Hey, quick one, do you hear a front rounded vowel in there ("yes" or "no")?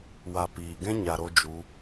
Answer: no